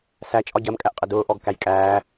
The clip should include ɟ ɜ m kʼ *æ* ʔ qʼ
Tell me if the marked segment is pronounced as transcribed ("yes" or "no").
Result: yes